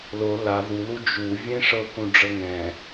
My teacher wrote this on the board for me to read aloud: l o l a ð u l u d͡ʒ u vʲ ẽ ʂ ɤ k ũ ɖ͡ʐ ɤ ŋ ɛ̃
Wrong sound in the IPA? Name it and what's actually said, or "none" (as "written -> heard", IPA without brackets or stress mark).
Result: none